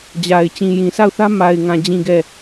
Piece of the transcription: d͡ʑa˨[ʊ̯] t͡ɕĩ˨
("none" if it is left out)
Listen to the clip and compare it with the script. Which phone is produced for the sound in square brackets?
ɪ̯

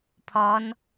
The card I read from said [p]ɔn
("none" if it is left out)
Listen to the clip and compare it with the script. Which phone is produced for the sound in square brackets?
pʰ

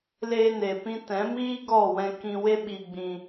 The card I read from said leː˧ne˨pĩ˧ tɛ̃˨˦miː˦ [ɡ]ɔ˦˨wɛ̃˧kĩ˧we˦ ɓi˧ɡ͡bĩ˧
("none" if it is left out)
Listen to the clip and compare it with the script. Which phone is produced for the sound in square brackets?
ɡ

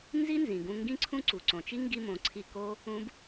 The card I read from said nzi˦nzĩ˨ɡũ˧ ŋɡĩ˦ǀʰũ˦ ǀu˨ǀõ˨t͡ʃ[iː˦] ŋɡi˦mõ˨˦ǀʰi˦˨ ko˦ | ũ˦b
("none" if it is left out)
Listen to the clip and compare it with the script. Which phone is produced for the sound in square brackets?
i˦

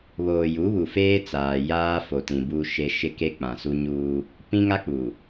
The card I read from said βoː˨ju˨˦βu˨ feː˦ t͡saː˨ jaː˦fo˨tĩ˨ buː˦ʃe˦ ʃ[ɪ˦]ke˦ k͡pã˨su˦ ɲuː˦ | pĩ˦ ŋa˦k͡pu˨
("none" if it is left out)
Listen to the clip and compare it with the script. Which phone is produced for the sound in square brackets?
ɪ˦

